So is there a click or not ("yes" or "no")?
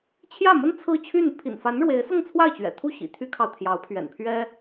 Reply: no